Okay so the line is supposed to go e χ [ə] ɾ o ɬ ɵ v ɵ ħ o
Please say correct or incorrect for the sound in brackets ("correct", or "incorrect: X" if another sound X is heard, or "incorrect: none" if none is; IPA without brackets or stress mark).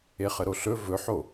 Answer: correct